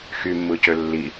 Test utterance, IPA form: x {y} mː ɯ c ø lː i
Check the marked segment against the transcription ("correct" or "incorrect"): correct